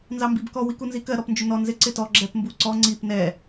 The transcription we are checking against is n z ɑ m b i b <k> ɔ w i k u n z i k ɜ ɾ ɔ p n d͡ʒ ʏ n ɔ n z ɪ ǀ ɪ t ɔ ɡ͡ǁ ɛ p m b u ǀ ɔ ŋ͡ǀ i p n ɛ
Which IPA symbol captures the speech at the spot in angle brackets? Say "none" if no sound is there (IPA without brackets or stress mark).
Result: k